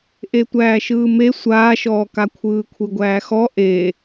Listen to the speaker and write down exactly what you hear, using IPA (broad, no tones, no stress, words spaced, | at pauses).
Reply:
ʔetʷæːʃɯːme sʷaːʃɔːka kʷʰɯːkʷʰɯɡʷæːxɔ ʔe